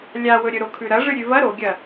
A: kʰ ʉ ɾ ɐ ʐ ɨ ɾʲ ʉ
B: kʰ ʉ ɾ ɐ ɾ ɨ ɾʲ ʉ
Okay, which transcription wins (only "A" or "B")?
A